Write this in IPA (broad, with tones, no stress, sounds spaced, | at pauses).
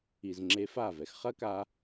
i˨˩ z ŋ͡ǁ e˧ f aː˥˩ v ɛ˧ x χ ɐ˦˥ k a˧